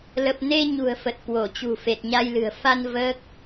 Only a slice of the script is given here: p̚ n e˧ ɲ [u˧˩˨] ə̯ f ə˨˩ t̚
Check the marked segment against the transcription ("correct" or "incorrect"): incorrect